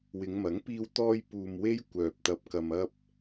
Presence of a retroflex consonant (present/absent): absent